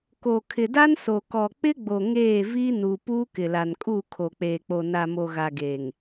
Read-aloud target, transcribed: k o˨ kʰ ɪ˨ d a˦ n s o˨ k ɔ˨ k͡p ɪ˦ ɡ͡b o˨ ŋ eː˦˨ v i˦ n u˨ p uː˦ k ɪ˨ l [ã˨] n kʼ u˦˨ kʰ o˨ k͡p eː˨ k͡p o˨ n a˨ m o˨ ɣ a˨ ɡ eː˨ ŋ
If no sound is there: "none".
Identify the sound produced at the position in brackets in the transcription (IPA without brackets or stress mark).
a˨